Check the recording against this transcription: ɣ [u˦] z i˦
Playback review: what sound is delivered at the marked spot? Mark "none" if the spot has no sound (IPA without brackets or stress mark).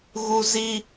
u˦